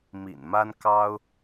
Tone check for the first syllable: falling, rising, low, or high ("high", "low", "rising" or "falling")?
low